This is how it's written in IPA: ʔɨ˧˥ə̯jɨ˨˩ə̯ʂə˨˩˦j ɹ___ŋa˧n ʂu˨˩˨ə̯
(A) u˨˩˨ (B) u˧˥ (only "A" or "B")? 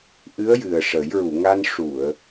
A